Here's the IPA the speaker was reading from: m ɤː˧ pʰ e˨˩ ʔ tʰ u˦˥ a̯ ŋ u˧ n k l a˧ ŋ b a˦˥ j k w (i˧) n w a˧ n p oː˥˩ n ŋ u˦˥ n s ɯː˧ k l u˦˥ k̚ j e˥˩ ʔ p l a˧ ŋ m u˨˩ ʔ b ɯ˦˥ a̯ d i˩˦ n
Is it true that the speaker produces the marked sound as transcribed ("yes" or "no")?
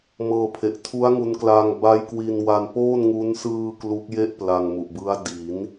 yes